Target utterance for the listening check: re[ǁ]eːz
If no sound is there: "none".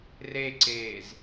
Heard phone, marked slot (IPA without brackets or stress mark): ǀ